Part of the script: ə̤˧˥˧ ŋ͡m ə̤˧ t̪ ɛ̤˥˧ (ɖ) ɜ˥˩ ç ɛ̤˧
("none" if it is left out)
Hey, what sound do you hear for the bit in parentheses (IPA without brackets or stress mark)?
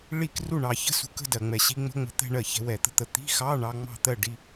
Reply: ɳ